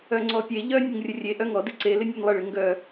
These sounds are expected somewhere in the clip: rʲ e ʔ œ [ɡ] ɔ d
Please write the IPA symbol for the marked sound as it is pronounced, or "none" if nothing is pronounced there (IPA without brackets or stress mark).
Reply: ŋ